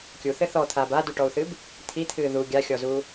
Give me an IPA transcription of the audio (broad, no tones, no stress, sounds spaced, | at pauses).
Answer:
kʲ u θ ɘ θ ɔ t̪ʰ aː b a d u ʈ ɔ u̯ θ ɨ b | t̪ʰ i t̪ʰ ɨː ð u ɡʲ a xʲ ɔ z u